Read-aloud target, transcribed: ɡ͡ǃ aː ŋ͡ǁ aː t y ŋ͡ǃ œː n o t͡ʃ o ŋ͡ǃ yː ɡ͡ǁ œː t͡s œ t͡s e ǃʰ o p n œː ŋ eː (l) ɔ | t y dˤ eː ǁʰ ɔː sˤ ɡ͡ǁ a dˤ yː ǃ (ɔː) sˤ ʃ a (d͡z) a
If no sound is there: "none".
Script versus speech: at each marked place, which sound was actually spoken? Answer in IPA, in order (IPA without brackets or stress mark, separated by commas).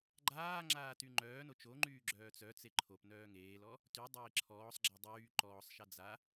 l, ɔː, d͡z